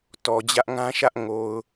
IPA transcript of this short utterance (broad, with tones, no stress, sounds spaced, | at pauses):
t ɔ˨ d͡ʑ ä˦ ʔ ŋ ã˦ ʃ ä˦ ʔ ŋ o˨ ʊ̯